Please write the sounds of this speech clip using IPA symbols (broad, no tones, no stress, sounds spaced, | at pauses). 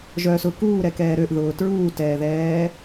ʒ œ s ʊ k uː ɾ ɛ k ɛː ɾ ø ʔ ð ʊː t ɹ uː t ɛː ð ɛː